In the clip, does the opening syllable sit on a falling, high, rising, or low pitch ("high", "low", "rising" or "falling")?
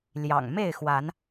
low